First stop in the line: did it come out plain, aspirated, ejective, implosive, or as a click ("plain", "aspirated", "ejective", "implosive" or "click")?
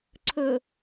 click